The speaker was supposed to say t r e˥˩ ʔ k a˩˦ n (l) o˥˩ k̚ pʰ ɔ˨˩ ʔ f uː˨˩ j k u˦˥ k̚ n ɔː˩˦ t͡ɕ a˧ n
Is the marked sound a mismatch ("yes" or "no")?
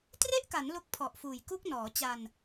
no